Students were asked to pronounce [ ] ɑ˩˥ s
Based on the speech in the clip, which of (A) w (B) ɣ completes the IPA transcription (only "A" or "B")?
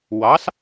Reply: A